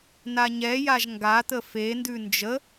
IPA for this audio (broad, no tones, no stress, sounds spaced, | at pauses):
n a ɲ ɛ j a ʒ ŋ ɡ a t̪ ə f e n d ʉ n d͡ʒ ə